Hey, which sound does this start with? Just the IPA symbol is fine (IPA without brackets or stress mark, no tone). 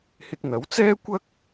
h